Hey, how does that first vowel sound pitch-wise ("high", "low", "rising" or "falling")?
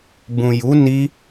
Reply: low